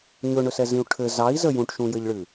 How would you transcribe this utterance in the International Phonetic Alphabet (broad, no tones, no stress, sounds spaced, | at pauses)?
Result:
ɲ ɵ ɳ ɵ s ɛ z ĩ u̯ ʈʰ ɘ z ɑ i̯ z ə j ũ ʈ ʃ ũ j ɘ ʎ ɭ ɨ